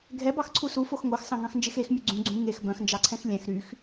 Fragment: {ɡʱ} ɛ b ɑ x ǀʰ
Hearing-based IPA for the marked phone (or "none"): ɡʱ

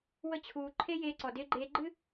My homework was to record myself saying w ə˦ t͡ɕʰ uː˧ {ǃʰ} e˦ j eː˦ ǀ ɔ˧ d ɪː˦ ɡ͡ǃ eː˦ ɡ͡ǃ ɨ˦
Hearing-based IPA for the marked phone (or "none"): ǃʰ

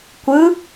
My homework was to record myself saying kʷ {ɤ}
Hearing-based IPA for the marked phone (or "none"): ɯ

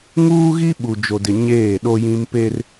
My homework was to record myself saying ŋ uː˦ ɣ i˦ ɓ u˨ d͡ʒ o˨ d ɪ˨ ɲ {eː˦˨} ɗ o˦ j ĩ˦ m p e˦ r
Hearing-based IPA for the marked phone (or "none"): eː˦˨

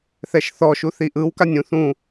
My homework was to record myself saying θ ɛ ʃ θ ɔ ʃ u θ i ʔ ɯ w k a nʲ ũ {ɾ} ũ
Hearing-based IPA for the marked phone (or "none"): θ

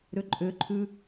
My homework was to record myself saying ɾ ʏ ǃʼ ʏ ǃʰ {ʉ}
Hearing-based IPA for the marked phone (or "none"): ʉ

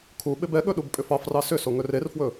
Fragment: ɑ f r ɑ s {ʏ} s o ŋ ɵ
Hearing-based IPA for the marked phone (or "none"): ʏ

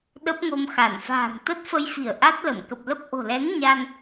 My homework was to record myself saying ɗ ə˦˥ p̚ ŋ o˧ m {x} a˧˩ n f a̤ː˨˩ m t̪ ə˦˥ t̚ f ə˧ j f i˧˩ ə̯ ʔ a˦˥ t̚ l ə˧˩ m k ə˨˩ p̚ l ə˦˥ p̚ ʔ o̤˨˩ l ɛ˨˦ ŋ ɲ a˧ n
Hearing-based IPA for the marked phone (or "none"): x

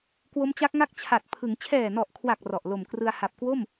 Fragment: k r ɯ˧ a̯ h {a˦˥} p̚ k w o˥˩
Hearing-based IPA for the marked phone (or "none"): a˨˩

